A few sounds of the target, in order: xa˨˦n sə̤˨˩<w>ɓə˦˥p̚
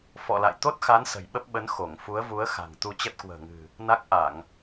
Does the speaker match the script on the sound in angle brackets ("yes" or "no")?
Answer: no